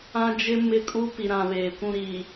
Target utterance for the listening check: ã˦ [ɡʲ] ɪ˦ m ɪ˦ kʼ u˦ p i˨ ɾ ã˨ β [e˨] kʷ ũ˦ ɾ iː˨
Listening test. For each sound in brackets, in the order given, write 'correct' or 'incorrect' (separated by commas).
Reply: incorrect, incorrect